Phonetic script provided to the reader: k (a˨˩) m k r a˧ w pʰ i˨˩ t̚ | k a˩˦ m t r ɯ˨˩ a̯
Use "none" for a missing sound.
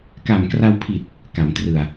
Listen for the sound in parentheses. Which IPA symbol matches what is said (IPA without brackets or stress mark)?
a˨˩